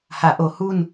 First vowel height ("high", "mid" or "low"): low